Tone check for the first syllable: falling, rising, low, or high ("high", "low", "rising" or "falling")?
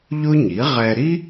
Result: high